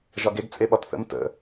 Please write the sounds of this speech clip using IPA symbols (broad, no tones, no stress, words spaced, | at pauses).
ʒɒɡeɡ t͡sʼeɓɒtθə̰m tə̰